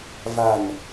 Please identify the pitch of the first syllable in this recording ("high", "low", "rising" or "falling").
low